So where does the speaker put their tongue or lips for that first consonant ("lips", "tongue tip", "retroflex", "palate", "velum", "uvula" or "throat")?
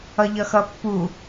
palate